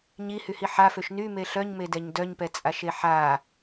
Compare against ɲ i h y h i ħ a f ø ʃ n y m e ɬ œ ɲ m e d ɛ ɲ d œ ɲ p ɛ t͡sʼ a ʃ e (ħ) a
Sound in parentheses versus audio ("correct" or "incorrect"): correct